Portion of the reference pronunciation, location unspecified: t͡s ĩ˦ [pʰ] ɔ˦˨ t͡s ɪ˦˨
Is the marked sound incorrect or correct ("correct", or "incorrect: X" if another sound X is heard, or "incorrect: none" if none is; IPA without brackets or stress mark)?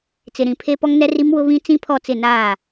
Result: correct